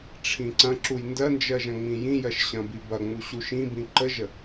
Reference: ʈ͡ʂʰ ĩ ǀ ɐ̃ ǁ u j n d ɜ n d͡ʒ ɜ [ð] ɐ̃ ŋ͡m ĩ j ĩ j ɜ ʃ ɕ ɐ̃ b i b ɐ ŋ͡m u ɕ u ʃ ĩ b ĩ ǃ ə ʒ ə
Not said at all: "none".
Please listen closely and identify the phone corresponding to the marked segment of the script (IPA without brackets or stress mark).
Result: ʒ